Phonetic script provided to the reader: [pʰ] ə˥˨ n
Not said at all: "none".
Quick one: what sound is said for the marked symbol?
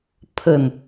pʰ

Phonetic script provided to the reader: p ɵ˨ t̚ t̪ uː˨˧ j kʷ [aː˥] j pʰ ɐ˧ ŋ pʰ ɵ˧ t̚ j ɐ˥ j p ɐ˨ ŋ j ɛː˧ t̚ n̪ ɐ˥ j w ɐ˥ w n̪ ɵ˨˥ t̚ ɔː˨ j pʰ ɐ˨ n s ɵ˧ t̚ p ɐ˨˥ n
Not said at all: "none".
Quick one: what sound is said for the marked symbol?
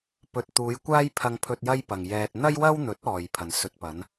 aː˥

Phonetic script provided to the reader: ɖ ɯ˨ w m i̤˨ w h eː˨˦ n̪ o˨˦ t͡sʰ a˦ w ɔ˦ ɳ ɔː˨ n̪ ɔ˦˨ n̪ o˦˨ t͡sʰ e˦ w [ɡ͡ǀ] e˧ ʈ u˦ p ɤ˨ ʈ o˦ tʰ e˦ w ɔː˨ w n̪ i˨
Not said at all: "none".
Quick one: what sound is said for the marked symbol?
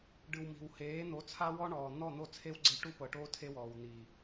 ɡ͡ǀ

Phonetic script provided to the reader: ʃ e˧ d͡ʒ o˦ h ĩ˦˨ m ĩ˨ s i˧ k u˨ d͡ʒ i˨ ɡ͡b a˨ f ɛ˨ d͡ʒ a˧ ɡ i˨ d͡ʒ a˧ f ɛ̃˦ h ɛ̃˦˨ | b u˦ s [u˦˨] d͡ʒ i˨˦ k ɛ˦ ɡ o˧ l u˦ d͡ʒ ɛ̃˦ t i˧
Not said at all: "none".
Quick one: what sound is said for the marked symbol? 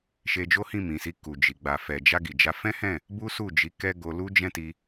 u˦˨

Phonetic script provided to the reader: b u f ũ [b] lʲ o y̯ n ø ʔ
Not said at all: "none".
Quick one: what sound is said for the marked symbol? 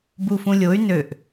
none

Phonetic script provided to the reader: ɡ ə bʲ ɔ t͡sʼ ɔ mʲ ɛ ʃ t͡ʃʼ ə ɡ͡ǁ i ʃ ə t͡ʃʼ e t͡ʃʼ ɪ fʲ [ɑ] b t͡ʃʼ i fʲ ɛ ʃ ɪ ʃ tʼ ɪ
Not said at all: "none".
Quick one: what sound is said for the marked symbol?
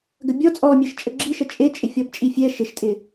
ɔ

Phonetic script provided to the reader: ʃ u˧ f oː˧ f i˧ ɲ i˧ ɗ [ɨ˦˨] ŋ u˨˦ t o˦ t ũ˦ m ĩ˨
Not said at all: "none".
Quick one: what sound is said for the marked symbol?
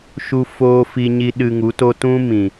ɨ˧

